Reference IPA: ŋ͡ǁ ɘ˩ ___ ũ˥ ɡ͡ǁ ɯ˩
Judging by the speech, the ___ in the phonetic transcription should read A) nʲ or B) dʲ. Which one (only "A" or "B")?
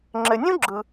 A